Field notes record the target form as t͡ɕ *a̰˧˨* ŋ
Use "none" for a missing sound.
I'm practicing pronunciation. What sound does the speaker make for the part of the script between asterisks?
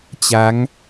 a˨˦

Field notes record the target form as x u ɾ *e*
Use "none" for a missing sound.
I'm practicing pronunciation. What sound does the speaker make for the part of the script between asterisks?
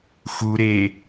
e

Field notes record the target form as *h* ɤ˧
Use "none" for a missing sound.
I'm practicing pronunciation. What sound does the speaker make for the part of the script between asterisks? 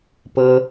p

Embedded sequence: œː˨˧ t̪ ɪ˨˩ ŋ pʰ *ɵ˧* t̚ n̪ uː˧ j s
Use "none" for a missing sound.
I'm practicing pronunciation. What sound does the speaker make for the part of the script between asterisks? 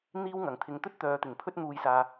ɵ˥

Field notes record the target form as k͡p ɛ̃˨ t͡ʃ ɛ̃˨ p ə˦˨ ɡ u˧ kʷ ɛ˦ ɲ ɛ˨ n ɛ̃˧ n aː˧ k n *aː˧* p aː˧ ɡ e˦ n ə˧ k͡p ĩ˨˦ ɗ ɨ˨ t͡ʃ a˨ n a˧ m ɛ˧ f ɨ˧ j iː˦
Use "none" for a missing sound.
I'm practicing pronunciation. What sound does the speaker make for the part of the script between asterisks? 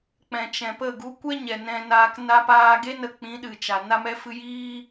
a˧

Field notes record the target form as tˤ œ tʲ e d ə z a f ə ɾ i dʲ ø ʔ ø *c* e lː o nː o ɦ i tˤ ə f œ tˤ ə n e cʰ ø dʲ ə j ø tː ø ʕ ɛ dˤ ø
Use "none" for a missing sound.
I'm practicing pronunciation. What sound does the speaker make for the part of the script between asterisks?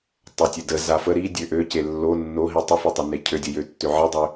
c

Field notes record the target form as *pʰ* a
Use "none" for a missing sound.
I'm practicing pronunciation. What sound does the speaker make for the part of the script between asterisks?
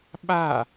ɓ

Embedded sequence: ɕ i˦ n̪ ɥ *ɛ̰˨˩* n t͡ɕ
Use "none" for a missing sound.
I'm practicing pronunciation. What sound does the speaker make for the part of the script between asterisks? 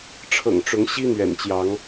ɛ̰˨˩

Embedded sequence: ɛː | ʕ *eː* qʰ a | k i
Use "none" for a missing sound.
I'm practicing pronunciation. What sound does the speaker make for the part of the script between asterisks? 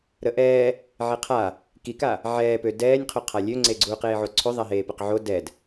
e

